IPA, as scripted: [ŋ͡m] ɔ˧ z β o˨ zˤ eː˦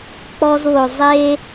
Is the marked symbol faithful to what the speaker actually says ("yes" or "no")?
no